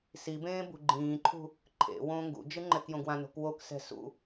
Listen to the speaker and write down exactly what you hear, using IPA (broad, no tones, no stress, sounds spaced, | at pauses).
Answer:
s i b ẽː b ṳ ɡ͡ǃ ĩː ǃʰ ṳ | ǃʰ ḛ w õː ŋ ɡ ṵ d͡ʒ ɯ ŋ͡ǃ ɛ k j õ ɡ w ã n o̤ k w o k s ɛ̤ s ṵ